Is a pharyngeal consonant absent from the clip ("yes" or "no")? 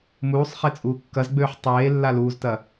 no